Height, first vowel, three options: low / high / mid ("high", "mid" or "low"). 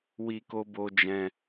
high